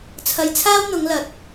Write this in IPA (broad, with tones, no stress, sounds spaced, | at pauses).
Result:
t͡sʰ ɐ˧ j t͡sʰ aː˥ w n̪ ʊ˨˧ ŋ l ɐ˨ t̚